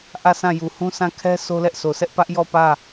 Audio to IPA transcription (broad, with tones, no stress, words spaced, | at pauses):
ʔä˦˨sʰã˦˨ju˨hũ˦ sã˦˨kʰɛ˦ sʰo˦lɛ˦ʔsʰo˨sʰɛ˦ʔ pä˦ʔjɔ˦˨ pä˦˨